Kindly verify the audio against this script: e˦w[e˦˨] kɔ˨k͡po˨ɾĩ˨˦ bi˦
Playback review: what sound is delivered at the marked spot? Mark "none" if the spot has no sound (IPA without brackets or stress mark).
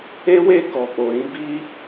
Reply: e˦˨